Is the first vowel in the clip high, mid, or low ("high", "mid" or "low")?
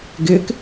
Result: high